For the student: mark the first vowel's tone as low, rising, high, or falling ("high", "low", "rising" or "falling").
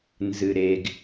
low